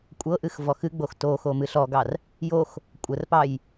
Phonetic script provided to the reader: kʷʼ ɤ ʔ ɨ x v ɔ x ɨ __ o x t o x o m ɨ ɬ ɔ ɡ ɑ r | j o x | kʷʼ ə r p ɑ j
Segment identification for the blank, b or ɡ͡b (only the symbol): ɡ͡b